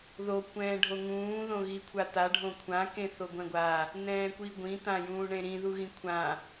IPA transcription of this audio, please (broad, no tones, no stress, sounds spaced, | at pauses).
ð o kʷ ɛ̃ː ɖʱ o ŋ ũː ð õ ɣ i kʷʰ a t̪ a ɖʱ õ kʷʰ ã k ẽ θ o ɡʷ ɛ̃ ɡʷ a | n̪ ɛ̃ː kʷ i ɡʷ ĩ t̪ ã j ũː ɳ ẽ ɾ ĩ ð u ɣ ĩ kʷʰ ã